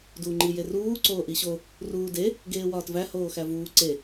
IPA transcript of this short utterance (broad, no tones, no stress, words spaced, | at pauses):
duːŋ͡ǃijeruː ǀoːʔiɕo | ruːde | ɡeːwɒːtvæ hoːxævuː ǀe